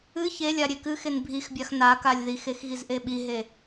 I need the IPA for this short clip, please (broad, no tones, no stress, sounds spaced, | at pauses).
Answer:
ɨ ç e lʲ a ɾʲ e k ɨ x e n bʱ i x bʲ a x n a k a lʲ ð i x e x ɣ i z ʔ e ɓ i ɦ e